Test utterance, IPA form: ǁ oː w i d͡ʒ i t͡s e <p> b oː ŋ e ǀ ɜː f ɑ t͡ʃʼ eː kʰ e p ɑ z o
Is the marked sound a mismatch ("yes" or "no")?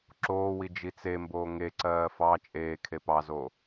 yes